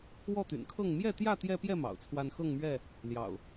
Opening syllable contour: falling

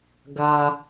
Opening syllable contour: high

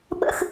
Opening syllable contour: high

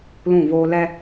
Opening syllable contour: falling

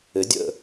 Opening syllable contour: rising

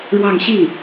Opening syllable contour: falling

